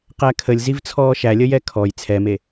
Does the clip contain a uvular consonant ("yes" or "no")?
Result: yes